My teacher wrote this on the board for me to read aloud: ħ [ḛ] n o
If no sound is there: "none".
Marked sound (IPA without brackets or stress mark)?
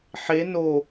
e